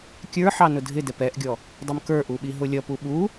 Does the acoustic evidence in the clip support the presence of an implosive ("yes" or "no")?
yes